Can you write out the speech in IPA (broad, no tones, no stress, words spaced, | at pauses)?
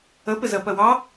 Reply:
əpɪzɜ pɜwɑ